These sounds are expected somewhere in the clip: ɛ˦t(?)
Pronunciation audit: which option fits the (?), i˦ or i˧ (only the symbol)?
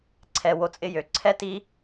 i˦